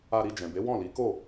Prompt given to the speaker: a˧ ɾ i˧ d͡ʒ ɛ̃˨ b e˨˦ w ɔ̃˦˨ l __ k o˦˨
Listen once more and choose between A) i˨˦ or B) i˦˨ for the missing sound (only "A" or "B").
A